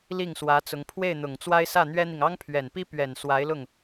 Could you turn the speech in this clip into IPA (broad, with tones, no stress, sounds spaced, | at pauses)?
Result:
l i˥˩ ŋ s w ä˧˥ t͡s ʊ˧˥ ŋ pʰ w e˥˩ ɪ̯ n̪ ʊ˨˩ ŋ t͡s w a˥ ɪ̯ s ä˥˩ n̪ ɥ ɛ˥ n̪ i˨ ŋ ɑ˥ ŋ pʰ ɥ ɛ˨˩ n p i˥ p ɥ ɛ˨˩ n s w a˧˥ ɪ̯ l ʊ˥˩ ŋ